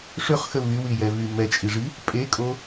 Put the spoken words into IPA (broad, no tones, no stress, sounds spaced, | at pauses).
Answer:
ʂ ø χ x ə v y w i j ɛ v y m ɛ t͡ʃʼ i ʐ i | pʼ e kʼ o